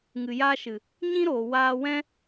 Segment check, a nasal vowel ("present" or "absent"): present